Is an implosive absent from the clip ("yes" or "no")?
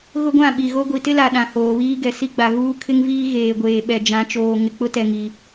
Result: no